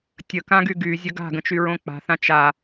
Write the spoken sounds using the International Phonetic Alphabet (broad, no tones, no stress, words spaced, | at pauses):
tʲəkãɡy ɡyzʲə ɡa̤ɡə̃t͡ʃyɹõ k͡pa̤θã t͡ʃa